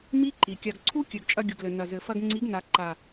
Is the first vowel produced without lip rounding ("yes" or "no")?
yes